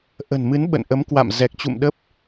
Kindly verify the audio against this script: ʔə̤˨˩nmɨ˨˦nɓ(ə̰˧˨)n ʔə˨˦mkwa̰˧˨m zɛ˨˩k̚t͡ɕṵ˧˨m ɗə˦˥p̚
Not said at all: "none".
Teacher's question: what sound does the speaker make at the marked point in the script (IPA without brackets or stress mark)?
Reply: ə̰˧˨